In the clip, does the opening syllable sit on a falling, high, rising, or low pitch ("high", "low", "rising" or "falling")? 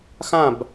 falling